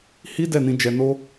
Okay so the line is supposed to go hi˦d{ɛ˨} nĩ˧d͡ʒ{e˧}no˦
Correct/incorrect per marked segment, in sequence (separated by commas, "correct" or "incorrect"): incorrect, incorrect